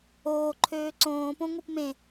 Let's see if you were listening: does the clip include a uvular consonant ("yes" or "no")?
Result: no